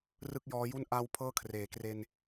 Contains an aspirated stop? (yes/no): yes